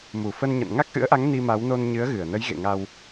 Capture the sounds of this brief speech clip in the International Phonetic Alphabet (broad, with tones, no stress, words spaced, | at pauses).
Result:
mu˧˩fə˧nɲə̰˧˨n ŋa˦˥k̚ʔɨ̰˧˥ə̯ʔa˨˦ŋ ni˧ma˨˦wno˧n ɲɨ˨˦ə̯ɣɨ˧˩ə̯nə˨˦j ɣḛ˧˨ŋa˧w